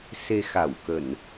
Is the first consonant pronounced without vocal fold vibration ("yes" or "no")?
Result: yes